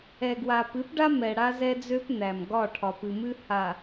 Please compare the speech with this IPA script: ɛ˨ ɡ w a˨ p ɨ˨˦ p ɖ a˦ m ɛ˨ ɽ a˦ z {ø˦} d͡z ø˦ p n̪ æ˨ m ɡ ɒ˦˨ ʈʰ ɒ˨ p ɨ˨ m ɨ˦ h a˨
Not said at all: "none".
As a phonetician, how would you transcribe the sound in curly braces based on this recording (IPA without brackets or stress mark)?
ɛ˦